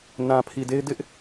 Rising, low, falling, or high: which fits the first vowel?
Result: low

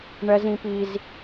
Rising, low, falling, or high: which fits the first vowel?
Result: high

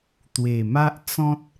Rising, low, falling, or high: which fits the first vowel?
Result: low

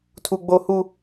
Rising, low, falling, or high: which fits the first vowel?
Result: high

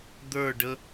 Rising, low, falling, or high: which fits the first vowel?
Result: falling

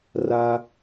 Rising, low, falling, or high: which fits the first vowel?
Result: high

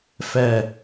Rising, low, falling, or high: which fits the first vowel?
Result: low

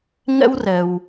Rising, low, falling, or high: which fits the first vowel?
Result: high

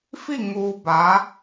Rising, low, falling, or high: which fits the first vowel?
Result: falling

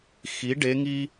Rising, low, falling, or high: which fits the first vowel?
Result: rising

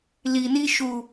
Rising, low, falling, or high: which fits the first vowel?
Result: low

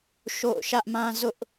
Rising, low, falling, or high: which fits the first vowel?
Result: falling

